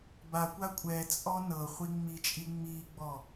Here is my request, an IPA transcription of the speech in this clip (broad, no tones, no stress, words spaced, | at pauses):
bakʷa kʷʼɛ t͡sʼɔnɤχʷi ŋ͡mit͡ʃʼi ŋ͡miɡ͡bɔ